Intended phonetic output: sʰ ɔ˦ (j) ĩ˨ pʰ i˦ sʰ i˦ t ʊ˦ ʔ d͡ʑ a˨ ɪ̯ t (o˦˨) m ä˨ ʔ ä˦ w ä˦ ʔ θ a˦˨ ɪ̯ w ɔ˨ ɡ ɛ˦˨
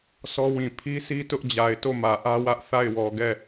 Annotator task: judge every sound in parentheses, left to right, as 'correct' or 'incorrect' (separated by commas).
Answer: incorrect, correct